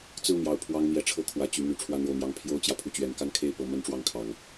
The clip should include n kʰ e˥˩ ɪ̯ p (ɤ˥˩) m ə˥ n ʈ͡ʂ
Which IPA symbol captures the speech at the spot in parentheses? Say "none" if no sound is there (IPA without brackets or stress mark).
ɤ˧˥